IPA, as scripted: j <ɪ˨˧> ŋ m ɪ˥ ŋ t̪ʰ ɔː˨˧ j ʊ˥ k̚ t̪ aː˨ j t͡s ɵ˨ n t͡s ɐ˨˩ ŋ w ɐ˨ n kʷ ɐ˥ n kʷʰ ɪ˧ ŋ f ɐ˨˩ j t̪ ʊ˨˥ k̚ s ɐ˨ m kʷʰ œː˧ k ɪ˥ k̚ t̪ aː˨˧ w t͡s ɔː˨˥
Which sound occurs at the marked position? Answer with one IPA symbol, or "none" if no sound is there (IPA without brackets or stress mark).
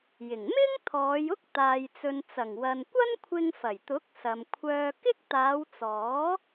ɪ˨˩